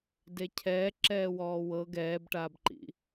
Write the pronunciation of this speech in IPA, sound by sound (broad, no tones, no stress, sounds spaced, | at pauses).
d e cʰ ɛː ǁ ɛː w ɔː w ɤ ɡ ɛː b ʈ aː b ǃ ḭ